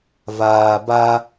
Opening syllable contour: low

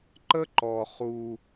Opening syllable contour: high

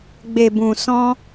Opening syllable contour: low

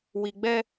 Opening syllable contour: low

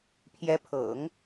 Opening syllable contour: rising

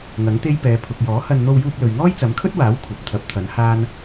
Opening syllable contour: rising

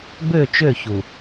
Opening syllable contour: falling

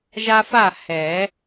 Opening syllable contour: high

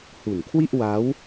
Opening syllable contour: low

